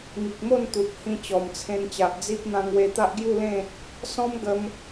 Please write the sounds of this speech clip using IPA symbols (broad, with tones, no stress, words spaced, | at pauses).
ŋi˨k̚mo˥˧n t̪u˨p̚ hĩ˧t͡ɕɔ˨˩mt͡sʰẽ˧nt͡ɕa˨ʔ d͡zi˦p̚ n̪ã˧ŋwe˧ t̪a˦ʔɡju˥˧lẽ˥˧ | sɔ̃˦mɡə˧m